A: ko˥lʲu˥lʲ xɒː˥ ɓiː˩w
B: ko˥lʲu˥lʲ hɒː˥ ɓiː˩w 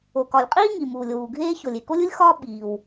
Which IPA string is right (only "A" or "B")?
A